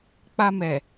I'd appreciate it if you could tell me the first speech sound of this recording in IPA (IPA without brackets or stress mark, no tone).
k͡p